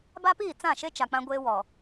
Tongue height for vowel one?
low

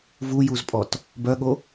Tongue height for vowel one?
high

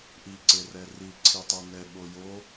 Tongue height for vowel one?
high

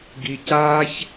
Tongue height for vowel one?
high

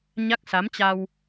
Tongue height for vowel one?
low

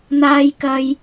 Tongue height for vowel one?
low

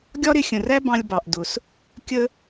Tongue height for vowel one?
low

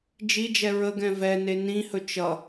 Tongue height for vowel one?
high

